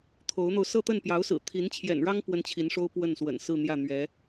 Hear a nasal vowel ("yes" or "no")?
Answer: no